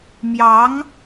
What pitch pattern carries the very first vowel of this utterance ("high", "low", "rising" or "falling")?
rising